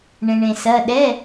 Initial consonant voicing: voiced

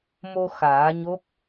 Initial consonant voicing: voiced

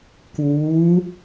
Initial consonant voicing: voiceless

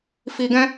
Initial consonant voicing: voiceless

